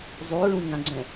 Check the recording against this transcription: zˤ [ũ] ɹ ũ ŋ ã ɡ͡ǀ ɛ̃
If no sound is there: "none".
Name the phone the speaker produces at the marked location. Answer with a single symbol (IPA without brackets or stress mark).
u